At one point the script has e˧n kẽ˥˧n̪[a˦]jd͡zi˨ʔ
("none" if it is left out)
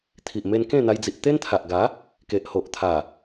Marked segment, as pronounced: a˧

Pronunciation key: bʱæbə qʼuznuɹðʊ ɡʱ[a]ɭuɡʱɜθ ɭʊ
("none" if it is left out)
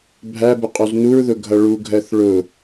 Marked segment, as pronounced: ʌ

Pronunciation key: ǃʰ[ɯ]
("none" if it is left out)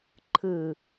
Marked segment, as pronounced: ɯ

